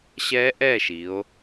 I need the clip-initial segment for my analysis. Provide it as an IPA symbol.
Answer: ɕ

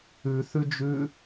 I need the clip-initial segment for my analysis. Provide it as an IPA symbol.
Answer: ʉ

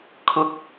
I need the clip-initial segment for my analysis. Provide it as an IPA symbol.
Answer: kʰ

